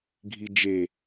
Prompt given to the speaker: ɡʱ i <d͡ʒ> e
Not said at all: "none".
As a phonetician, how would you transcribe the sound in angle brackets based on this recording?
d͡ʒ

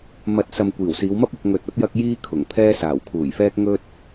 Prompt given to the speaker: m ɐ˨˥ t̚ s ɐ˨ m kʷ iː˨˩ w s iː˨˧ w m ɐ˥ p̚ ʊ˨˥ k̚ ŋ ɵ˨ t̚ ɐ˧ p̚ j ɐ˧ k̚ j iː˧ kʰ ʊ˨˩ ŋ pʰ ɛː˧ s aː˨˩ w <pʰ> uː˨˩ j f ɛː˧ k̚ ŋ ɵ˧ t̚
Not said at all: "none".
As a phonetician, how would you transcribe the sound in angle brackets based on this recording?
kʰ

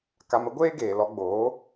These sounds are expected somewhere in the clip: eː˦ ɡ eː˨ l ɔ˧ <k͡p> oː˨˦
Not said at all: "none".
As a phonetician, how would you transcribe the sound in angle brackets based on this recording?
ɡ͡b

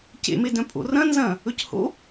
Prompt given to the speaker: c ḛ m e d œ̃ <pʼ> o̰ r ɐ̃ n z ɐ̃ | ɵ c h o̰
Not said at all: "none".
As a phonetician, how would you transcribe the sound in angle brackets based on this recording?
pʼ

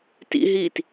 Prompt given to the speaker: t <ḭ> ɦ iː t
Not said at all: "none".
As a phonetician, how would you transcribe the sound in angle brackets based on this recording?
ḭ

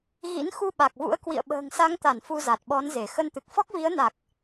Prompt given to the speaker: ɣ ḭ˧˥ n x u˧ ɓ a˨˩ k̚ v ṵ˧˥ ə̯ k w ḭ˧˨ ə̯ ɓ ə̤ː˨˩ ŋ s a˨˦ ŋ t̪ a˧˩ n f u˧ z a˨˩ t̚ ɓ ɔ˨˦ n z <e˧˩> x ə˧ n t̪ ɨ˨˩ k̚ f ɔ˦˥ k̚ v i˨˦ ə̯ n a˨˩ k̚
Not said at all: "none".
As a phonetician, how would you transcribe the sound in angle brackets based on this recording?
e˧˩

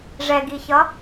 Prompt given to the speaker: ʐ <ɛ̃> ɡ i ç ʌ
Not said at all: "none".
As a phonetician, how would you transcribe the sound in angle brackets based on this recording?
ɛ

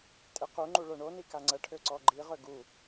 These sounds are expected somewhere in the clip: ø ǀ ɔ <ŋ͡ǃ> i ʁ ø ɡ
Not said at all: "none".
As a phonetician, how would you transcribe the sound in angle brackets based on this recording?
ɡ͡ǃ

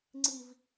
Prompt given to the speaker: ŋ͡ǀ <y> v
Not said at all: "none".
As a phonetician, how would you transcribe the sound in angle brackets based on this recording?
i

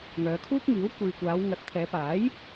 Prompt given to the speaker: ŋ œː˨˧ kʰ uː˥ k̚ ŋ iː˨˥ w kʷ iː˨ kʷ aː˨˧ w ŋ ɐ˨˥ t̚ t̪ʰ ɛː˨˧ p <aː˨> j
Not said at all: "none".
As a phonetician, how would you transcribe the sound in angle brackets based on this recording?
aː˨˥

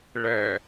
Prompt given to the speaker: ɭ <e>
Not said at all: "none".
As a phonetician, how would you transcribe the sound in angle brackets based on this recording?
ɛ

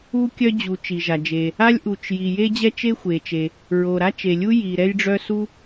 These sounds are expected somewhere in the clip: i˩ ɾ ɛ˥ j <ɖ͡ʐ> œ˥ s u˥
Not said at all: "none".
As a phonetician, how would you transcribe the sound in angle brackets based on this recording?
ɖ͡ʐ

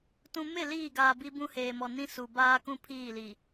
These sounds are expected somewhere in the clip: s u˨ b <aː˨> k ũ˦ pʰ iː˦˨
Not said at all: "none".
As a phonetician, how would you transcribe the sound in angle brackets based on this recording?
aː˦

